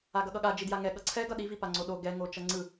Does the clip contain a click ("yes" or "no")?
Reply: yes